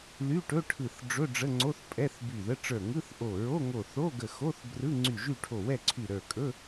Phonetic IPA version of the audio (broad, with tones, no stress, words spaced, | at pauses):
ly˧˥˧ʈɵ˧˥˧ʈʰɯ˧˩θ ɖ͡ʐɵ˧˥˧ɖ͡ʐə˧˥˧ŋ͡ǀo˧˥˧θ pʼɛ˧˥˧θby˧˩ðə˧˥˧ ʈ͡ʂə˞˧˩ŋɯ˧˥˧θ ʔo˧˩ ɹo˧˥˧ŋo˧˩ θo˧˥˧ɡə˧˩xo˧˥˧θ brɯ˧˥˧ŋ͡ǀy˧˩ʒy˥˨ʈʰo˧˩ wɛ˥˨ǀʰy˧˩ɾə˞˧˩kʼɵ˧˥˧